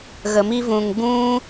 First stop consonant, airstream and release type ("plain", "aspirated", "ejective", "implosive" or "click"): plain